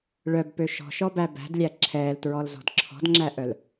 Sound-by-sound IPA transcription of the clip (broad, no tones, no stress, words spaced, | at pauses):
ɭœbpø ʃɔ̤ʃɔbæ bæ̤dlʲæ ǁʰɛːltɹɔlzɔ̤d ǁʰɔ̤dŋ͡ǁæʔœl